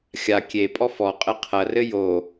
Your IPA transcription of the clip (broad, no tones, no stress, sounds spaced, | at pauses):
xʲ a kʲ e pʼ ɔ f ɔ qʼ ɘ qʰ ɐ r ɘ j o